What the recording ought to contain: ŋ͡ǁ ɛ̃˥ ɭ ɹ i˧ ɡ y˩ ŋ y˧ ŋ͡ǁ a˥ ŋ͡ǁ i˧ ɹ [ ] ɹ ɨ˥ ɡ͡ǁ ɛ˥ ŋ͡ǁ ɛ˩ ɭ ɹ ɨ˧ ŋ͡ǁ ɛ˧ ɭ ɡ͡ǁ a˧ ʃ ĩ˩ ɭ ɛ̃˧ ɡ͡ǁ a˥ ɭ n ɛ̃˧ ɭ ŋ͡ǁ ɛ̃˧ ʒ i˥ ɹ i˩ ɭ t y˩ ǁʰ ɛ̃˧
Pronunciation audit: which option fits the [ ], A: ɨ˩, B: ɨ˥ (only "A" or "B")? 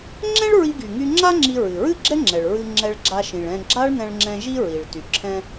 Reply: A